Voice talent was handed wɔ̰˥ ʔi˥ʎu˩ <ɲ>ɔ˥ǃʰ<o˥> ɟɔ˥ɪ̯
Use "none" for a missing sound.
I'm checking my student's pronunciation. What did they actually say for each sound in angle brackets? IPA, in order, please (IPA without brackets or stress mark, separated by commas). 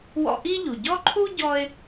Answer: ɟ, u˥